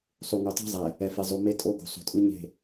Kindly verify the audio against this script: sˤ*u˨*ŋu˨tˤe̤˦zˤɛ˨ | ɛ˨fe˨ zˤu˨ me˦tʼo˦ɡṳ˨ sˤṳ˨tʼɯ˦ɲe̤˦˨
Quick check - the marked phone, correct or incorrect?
correct